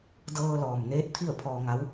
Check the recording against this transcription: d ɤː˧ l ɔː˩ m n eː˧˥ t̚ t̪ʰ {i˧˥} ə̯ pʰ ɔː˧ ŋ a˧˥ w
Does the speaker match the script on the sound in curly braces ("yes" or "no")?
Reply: no